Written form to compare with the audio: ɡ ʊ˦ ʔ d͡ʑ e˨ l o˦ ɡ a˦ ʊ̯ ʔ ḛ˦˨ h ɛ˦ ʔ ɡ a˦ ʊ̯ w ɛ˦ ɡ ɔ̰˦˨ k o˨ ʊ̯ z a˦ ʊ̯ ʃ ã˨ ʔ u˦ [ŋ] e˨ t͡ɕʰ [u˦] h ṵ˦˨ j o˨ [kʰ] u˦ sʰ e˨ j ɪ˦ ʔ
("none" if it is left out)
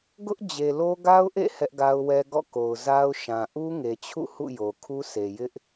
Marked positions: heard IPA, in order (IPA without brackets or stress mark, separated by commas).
ŋ, ṵ˦˨, kʰ